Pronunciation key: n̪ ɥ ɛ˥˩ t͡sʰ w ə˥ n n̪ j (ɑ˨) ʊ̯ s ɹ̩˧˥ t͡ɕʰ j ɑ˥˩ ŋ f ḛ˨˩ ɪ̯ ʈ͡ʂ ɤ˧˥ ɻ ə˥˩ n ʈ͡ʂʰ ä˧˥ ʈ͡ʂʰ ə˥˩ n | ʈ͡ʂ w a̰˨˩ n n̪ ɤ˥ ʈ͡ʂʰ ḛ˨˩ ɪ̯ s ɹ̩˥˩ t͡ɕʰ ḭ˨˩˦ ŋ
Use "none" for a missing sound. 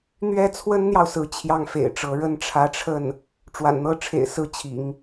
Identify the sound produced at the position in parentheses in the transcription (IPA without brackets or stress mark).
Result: ɑ˨